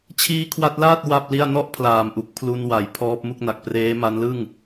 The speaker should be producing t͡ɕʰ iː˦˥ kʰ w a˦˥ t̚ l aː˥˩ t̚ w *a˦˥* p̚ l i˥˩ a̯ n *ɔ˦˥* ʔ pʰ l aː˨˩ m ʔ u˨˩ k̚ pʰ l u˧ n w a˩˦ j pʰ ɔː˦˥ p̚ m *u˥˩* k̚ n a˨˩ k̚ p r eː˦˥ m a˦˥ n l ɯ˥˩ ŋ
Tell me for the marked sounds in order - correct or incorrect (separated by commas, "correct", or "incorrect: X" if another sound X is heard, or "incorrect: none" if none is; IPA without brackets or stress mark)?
incorrect: a˥˩, incorrect: ɔ˥˩, correct